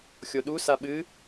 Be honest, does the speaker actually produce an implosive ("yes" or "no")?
yes